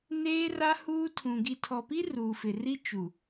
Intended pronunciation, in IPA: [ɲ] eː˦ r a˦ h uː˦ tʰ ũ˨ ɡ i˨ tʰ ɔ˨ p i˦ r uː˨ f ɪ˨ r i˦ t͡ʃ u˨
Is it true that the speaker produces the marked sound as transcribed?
no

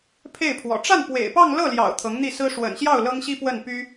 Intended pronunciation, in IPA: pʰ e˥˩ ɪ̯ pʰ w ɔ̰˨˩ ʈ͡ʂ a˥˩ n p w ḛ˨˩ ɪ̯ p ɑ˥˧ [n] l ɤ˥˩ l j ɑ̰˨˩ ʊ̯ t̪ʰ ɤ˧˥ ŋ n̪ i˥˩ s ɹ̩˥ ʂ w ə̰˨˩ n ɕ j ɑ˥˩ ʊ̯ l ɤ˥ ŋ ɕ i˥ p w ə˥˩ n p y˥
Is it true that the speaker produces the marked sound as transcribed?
no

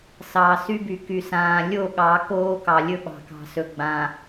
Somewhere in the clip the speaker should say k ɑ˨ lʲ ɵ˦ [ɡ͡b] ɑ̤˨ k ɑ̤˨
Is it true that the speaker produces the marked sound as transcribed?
no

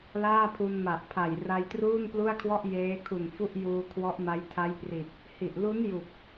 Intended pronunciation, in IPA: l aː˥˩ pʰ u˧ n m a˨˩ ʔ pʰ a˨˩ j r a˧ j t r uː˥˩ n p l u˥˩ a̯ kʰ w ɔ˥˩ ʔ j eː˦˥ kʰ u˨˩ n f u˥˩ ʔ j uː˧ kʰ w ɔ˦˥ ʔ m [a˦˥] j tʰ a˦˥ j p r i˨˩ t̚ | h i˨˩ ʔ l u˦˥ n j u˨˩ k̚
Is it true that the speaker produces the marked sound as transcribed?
yes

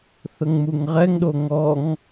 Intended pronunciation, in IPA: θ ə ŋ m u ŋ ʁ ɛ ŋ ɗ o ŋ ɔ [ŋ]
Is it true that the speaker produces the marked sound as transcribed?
yes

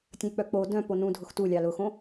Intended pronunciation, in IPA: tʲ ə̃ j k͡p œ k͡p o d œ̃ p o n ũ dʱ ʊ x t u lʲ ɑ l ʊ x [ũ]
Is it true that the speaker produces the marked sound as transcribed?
no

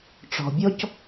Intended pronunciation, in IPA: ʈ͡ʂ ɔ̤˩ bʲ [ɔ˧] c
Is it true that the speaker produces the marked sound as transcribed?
yes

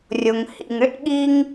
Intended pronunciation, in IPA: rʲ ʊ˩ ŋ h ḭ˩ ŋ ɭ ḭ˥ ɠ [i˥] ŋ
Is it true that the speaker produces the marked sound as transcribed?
yes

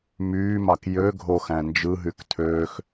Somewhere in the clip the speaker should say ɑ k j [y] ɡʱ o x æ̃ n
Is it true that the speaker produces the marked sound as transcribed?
no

